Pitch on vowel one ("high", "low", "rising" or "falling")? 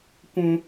high